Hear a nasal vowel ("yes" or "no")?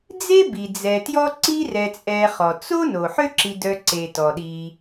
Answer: no